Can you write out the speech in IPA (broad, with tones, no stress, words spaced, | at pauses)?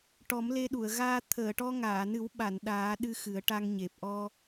ʈɔ˨˩˦mle˧ɗu˨˩˨ə̯ ɣaː˧t̪ʰəː˨˩˨ ʈɔ˧ŋaː˨˩˨nɨ˨˩˦wɓa˨˩˨n ɗaː˨˩˦ ɗɨ˧ xɨ˨˩˦ə̯ʈa˧ŋɲe˨˩p̚ ʔɔ˧